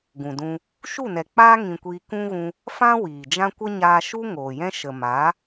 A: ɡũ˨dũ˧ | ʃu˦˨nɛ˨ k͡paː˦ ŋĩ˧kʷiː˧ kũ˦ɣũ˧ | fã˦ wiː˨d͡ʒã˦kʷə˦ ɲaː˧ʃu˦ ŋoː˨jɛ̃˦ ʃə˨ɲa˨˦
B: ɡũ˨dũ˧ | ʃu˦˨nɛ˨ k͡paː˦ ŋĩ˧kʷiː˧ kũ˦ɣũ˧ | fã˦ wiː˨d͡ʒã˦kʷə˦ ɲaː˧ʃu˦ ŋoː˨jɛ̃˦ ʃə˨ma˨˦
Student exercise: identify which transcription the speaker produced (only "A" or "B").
B